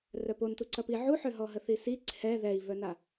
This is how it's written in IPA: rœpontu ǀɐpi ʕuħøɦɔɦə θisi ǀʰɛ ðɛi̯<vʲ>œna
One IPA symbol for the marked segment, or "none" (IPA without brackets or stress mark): v